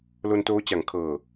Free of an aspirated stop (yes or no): no